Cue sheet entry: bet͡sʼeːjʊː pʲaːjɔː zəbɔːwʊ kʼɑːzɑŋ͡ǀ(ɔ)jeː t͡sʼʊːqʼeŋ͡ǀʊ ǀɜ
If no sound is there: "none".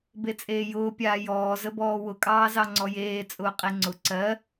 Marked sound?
ɔ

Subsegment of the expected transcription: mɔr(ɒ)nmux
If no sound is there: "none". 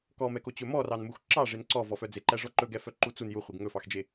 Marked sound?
ɑ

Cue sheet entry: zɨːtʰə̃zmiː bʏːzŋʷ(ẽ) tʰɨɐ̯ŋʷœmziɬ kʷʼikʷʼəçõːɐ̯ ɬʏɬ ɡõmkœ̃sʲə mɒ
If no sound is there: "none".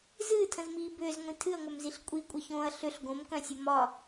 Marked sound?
ĩ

